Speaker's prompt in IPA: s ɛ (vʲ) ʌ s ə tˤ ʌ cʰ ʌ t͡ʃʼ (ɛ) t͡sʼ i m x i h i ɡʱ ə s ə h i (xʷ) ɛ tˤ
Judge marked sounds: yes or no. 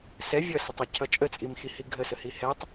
yes, no, no

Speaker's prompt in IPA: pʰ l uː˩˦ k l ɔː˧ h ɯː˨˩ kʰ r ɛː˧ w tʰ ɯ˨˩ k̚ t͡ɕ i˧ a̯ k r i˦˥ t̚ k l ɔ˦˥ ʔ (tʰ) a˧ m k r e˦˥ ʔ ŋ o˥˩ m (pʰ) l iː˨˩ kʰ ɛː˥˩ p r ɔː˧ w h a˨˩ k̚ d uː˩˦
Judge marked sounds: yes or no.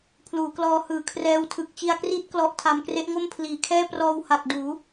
yes, yes

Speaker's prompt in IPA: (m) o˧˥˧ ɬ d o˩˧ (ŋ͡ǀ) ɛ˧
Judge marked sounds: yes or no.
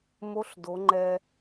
yes, no

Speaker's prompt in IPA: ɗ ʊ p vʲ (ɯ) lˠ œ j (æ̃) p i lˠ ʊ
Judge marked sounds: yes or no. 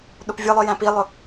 yes, yes

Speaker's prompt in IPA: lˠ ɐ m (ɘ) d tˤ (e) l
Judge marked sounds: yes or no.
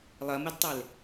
yes, yes

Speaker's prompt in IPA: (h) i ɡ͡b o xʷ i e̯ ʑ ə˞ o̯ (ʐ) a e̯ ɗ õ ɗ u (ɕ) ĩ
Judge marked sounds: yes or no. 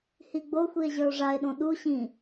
yes, yes, yes

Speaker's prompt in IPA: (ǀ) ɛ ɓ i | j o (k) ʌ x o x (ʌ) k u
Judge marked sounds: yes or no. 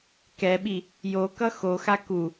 no, yes, no

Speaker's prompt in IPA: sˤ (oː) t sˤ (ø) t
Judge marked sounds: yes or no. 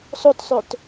no, yes

